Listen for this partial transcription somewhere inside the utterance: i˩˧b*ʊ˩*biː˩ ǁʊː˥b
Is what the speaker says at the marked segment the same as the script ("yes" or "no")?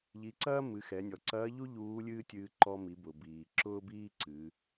yes